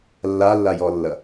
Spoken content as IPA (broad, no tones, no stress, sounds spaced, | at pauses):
lː a lː a j ɔ lː ɐ